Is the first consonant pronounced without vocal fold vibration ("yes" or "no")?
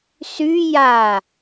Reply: yes